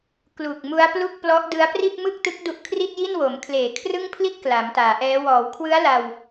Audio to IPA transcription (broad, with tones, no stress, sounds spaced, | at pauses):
k l u˨˩ k̚ m u˦˥ a̯ p l u˥˩ k̚ p l ɔ˦˥ ʔ d ɯ˦˥ a̯ p r i˥˩ t̚ m ɯ˥˩ k̚ t ɯ˦˥ k̚ d u˦˥ ʔ kʰ r i˥˩ t̚ j i˥˩ n w o˩˦ m kʰ l eː˨˩ kʰ r ɯ˥˩ ŋ pʰ l i˥˩ t̚ k l a˩˦ m t aː˩˦ ʔ ɛː˦˥ w ɔː˩˦ w kʰ w ɯ˦˥ a̯ l a˧ w